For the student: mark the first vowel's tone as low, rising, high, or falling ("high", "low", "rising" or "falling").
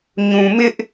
low